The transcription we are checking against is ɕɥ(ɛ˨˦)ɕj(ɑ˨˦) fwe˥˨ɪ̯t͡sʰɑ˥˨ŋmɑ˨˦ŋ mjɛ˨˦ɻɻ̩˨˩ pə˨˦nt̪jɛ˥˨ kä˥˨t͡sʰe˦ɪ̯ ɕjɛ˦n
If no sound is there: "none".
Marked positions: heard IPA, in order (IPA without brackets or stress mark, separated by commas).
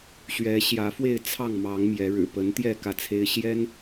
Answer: ɛ˨˦, ä˨˦